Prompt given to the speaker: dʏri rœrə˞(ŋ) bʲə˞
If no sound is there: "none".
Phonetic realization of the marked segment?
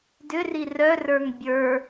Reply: ŋ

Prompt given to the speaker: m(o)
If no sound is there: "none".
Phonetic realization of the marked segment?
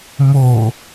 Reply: o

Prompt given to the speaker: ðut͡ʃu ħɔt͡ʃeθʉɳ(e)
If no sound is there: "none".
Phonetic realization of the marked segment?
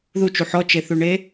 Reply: e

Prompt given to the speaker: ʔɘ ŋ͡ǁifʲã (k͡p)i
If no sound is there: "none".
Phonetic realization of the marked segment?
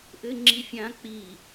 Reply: k͡p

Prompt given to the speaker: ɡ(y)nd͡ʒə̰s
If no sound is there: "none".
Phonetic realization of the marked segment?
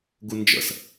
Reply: u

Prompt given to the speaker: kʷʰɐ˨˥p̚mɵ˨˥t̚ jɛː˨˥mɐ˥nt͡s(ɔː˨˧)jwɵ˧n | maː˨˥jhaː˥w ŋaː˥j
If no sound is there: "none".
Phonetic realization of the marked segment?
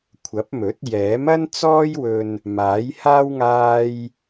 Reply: ɔː˥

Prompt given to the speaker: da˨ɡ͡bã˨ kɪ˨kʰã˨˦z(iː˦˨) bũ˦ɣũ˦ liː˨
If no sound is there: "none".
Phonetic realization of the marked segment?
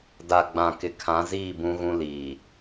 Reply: iː˦˨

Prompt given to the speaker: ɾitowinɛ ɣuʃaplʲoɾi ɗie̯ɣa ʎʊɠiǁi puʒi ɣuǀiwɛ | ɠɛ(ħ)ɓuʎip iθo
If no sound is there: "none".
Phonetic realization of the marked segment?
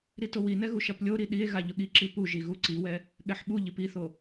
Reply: ħ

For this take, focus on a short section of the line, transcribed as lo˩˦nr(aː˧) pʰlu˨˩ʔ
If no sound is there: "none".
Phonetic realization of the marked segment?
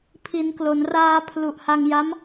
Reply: aː˧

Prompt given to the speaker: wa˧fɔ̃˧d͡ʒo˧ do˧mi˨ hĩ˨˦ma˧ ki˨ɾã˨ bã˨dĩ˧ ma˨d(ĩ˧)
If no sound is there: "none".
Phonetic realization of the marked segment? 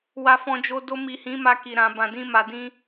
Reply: ĩ˧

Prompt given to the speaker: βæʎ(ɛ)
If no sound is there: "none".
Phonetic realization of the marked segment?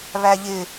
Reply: ɪ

